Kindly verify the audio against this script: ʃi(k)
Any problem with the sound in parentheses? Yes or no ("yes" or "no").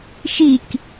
no